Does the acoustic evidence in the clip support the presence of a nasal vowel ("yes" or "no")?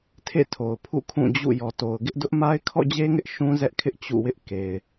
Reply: yes